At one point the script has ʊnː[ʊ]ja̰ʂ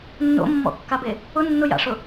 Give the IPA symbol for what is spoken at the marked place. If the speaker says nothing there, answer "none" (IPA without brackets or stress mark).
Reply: ʊ